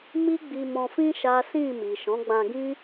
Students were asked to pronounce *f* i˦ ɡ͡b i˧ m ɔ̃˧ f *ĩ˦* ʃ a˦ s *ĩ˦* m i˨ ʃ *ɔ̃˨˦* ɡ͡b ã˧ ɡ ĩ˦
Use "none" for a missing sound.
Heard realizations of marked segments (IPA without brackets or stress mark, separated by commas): m, ĩ˦, ĩ˦˨, ɔ̃˨˦